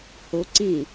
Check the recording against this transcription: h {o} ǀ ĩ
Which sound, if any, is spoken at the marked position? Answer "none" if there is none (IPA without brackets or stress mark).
o